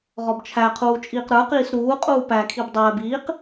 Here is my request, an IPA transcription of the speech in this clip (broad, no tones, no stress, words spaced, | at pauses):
ʁɔbt͡ʃʰæqʰuː t͡ʃʼiːqɾə˞qiːs ɾuːqʼuː pækʰib dˤɛːb iːq